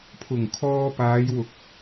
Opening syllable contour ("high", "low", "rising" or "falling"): low